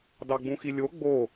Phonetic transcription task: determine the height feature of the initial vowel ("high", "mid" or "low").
low